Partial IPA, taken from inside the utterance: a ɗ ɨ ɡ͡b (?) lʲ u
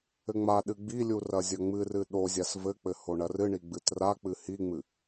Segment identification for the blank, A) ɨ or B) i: B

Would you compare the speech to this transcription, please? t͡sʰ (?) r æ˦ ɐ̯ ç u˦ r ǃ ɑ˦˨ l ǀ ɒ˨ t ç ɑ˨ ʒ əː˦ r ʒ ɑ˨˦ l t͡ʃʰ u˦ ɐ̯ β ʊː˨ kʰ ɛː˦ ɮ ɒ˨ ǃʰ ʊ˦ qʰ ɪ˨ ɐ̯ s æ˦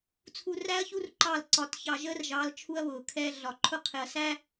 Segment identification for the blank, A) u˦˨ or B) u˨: B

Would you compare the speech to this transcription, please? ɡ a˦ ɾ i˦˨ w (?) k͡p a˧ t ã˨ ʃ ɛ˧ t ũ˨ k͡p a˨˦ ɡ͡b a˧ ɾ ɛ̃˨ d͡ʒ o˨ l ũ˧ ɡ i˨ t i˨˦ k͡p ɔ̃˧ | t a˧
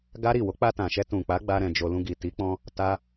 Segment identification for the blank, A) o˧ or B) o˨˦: B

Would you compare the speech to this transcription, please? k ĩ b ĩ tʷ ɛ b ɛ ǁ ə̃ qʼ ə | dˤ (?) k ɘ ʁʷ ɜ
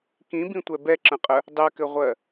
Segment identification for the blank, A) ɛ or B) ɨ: A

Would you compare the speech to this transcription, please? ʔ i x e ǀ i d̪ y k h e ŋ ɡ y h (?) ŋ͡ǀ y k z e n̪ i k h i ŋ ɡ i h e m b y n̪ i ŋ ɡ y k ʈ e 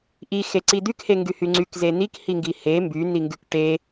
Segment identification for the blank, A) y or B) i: A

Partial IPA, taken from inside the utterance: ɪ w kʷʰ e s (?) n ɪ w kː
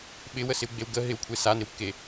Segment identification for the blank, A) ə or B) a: B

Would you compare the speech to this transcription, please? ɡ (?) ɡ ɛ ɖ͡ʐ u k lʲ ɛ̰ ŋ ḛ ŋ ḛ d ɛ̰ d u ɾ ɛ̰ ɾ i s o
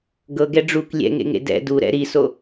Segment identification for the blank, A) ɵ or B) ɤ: B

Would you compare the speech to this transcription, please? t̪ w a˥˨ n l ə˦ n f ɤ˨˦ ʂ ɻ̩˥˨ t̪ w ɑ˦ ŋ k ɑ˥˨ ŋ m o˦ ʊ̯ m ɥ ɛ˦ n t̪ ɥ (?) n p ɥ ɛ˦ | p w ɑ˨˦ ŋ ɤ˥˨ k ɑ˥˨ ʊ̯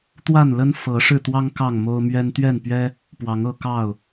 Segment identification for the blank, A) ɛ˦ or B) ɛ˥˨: B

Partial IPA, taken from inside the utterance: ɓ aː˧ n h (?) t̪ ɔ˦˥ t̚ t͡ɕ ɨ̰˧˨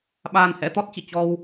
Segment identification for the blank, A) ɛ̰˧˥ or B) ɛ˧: A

